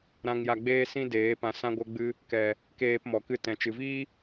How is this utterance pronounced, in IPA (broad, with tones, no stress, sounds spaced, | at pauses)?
ɾ ã˧ ŋ j a˧ ɡ͡b eː˦ s ĩ˦ d eː˨˦ p ã˧ s ã˦ ɡʷ ə˦ ɡ͡b ɨ˦ | k ɛ˨ | k eː˧ p m ɔ˨ k ɨ˧ t ɛ̃˨ t͡ʃ ɨ˨ v iː˦